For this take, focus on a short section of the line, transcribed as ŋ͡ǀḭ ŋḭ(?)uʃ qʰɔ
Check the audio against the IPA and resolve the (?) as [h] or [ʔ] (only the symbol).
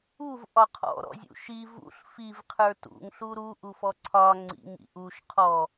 ʔ